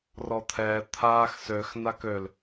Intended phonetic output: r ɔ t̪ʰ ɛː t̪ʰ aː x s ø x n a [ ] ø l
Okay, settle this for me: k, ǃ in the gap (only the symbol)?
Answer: k